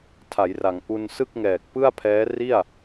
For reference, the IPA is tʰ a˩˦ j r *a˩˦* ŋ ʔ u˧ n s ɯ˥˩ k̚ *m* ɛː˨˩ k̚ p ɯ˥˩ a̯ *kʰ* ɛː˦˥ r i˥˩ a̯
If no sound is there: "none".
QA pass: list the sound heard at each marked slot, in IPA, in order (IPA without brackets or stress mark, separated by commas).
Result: a˩˦, ŋ, pʰ